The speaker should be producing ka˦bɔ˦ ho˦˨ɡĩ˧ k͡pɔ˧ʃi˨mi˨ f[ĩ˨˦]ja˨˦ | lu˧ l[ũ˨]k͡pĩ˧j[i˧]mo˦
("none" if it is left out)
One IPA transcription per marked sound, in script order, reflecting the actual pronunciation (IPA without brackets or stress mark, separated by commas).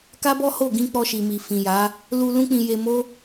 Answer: ĩ˨, ũ˦, e˧